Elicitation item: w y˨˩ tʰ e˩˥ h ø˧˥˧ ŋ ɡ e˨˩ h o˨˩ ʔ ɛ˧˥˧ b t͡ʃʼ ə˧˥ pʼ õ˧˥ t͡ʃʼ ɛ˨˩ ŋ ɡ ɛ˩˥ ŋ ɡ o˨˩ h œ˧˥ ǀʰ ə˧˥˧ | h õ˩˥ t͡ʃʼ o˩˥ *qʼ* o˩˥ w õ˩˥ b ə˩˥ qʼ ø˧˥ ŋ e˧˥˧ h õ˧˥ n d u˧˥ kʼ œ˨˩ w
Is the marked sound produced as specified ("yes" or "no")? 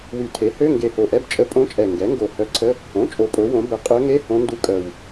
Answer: no